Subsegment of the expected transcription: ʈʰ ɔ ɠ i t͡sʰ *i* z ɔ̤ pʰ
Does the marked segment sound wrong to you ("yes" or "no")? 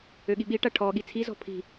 no